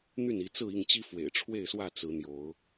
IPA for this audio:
n̪ y˥˨ n i˨˦ t͡s ɹ̩˥˨ i˥˨ ŋ t͡ɕ i˦ f w ḛ˨˩ ɪ̯ ʈ͡ʂʰ w e˥˨ ɪ̯ s w ä˥˨ t͡s ɹ̩˨˦ n̪ j o˨˦ ʊ̯

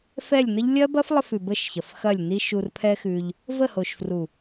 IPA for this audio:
f ɛ˦˨ lʲ n ə˦ ʎ lʲ ɐ˦ b ɐ˦ f lˠ ə˧ f ʉ˨ b ə˦˨ ʃ ç ɐ˨ f x ɐ˦˨ lʲ n i˦ ʃ u˧ r pʰ ɛ˦ x ʉ˧ ʎ | v ə˦˨ h o˨ ʃ f r u˨

